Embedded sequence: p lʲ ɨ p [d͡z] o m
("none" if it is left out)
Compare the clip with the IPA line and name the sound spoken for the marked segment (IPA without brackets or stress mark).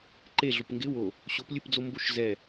d͡z